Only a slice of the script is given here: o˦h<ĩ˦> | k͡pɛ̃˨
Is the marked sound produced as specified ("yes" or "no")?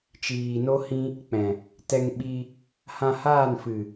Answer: yes